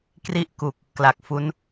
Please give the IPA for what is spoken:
k r i˥˩ ʔ k u˨˩ k̚ | k l a˨˩ k̚ f u˦˥ n

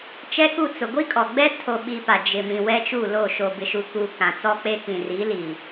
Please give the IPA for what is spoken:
t͡ʃ ɛ˦ k u˦˨ t͡s ʊ˨ ɡʷ i˦ kʼ ɔ˨ ɡ͡b ɛ˦ tʰ o˨ ɓ i˦ p a˨ d͡ʒ ɪ˨ m ĩ˨ w ɛ˦ t͡ʃ u˦˨ l o˦˨ ʃ o˨ b ɪ˨ ʃ u˨ k u˦ k ã˨ t͡s ɔ˦ k͡p e˦ k ĩ˨ r i˨˦ l i˨

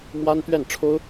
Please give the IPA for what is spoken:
m w a˥ n t̪ ɥ ɛ˥˩ n ʈ͡ʂʰ o˥ ʊ̯

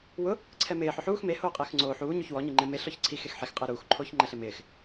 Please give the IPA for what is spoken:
w ʊ | ǀʰ ɛ m ɪː ħ ʊ ħ uː x m e h oː qʼ ɪː x ŋ͡ǀ oː ħ uː ɲ u ç w ɔ ɲ i ŋ͡ǃ ɪ m e ɬ ɔ ç ǀʰ i x e x ħ e x qʼ ɪː ɾ uː x ǃʰ oː ç ŋ͡ǃ ɛ ɬ ɪ m ɪː x

